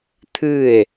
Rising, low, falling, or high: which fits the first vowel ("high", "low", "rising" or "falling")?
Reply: falling